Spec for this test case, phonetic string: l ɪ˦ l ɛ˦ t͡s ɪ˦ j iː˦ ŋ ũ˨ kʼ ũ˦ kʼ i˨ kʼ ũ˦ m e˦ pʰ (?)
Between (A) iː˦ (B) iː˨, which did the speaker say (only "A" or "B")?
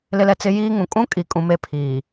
B